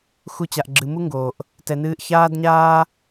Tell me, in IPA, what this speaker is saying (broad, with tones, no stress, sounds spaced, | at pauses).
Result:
x u˦ t͡ɕ a˧ ʔ ɡ͡ǁ ɨ˧ m u˦ ŋ ɡ oː˨ ʔ | t ɛ˧ n ɨː˦ ʔ ç aː˦ d ɲ aː˦